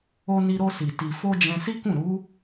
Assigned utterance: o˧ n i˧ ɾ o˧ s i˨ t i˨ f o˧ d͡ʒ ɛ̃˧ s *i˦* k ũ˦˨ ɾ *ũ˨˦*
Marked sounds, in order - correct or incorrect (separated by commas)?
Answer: correct, incorrect